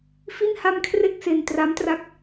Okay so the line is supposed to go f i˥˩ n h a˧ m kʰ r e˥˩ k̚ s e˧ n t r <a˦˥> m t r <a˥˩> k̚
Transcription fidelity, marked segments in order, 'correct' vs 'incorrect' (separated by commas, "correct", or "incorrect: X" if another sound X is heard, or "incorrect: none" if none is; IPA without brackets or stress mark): correct, incorrect: a˦˥